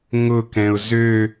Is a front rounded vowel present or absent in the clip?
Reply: present